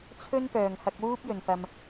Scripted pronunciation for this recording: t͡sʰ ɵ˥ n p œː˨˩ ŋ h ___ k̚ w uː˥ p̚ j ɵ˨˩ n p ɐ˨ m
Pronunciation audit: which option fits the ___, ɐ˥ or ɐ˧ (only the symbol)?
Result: ɐ˧